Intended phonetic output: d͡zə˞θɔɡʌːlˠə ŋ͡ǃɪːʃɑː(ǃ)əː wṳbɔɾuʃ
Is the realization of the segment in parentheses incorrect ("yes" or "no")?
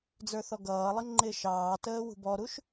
yes